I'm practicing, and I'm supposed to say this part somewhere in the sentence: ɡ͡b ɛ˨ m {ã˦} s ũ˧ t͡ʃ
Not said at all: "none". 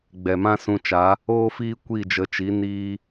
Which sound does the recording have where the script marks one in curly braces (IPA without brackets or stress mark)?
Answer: ã˦